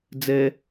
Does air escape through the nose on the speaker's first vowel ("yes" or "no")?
no